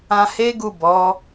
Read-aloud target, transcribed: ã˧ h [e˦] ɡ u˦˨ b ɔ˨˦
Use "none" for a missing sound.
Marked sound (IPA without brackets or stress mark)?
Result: e˦